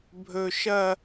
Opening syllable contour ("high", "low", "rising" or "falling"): high